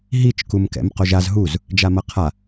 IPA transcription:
ɦit͡ʃkumkɛ̰m qoʒaz ɦuz | d͡ʒamʌqʰa

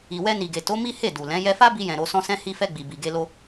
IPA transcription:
i˨wɛ˧ni˨ɡe˨ to˨˦ mi˦he˦˨du˨lɛ̃˨˦ jɛ˧fa˦bi˧jɛ̃˨ ɾo˧sɔ̃˦sɛ̃˦ hi˧fɛ˧ ɡ͡bi˨bi˨ ɡe˧lo˧

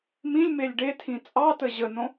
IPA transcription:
mĩlʲ melʲɖetʰĩ t͡sʼɑtə ʑənõ

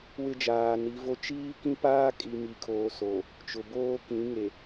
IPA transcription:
wɪ˦d͡ʒaː˨ni˨˦vo˦ t͡ʃiː˦kĩ˦paː˦kʼi˨ mi˨kʰoː˨ so˨ | t͡ʃʊ˨boː˦ kĩ˨˦ŋe˨

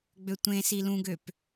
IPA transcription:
ɡ͡bøtʷẽ silũɡøp

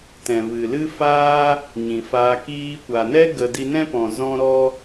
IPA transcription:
tɛ̃˨vɨ˨lɨ˦faː˦ | ɲĩ˨faː˧ kiː˧kʷa˨nɛ˦ ɡə˨ di˧nɛ̃˦pɔ̃˨ zɔ̃˦ɾɔ˦

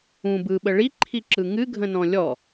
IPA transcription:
ũb ɯɓə ɭiǃʰiǁɯ ŋɨɡʱə̃nɔ̃ lʲɔ

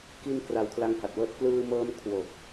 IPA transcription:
ki˧n kra˧wkʰla˦˥ŋha˨˩t̚wɤː˦˥t̚ klɯː˧mɤː˧m kʰwo˨˩k̚

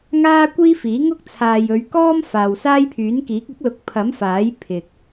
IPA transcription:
ŋaː˥kʷiː˥fiː˨˥ŋʊ˥k̚ t͡sʰaː˨jɵ˨˧ɥkɔː˥m faː˨wsaː˥jpʰyː˨˥nkiː˨˥k̚ ɪ˨˥k̚lʊ˨k̚ pʰɐ˨˥mfaː˨˥j pʰɪ˨k̚

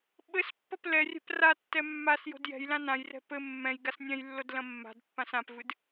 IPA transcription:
ɓɘspːɐp lɛrʲɛ̤p ratːɛ mːas jo̤djɛ̤jlã nãjrɛ̤ pɘ mːɛ̃jɡas nʲɛ̃jlːod lɐ̃mːa̤dpːãs ãpvɨd

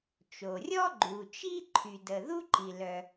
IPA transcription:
t͡ʃo˩rʲɔ˥ ɡ͡ǃu˩t͡ʃi˥ ǃʰy˩də˩ ðu˥ǃi˩lœ˩

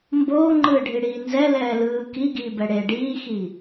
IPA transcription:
mboːŋ͡ǃɯːɖʱi ɽiːnzɛ lɛːlɯː kiɡiːbɛ ɽe ɖiːxi

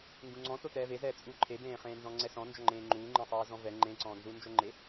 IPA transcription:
ŋɡũŋ͡ǀɔ̃ totɛːvezɛː t͡sʼuːǃʰebẽːχẽː nzɔ̃ŋ͡ǀɛsɔ̃nd͡ʒɔ ŋ͡ǃẽːŋ͡ǃuːŋ͡ǃẽsˤɛː zɔ̃vɛ ŋ͡ǃẽǀɔ̃ːnzu nd͡ʒoŋ͡ǃe

